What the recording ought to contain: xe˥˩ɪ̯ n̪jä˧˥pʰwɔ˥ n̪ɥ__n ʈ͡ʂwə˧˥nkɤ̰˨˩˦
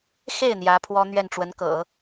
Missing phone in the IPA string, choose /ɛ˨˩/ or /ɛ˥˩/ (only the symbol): ɛ˥˩